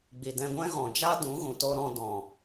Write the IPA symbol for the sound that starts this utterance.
ɡ͡b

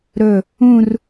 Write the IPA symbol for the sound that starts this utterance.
ɾ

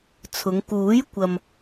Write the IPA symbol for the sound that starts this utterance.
t͡sʰ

